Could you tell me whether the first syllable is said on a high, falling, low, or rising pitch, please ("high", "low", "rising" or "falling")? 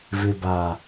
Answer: low